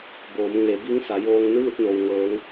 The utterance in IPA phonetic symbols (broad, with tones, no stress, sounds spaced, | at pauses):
b oː˩˧ m ŋ e˩˧ b i˧˥ ŋ s a˩˧ j oː˧ ŋ n ɯː˥˨ t̚ n o˩ w ŋ ɤː˩˧ ŋ